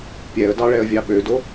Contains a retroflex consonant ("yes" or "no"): yes